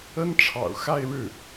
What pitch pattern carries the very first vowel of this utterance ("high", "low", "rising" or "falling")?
high